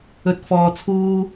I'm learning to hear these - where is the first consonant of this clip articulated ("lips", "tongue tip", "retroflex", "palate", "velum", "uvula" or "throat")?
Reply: tongue tip